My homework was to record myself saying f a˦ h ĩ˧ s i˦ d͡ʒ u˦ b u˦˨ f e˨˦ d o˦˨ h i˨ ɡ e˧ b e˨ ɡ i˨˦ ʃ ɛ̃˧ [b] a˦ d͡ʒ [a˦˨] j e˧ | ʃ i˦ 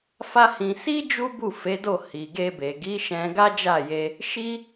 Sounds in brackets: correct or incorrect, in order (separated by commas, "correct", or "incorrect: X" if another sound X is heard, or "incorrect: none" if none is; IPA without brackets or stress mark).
incorrect: ɡ, correct